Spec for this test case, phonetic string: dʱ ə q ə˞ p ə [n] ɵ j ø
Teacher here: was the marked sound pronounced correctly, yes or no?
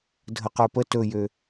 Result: no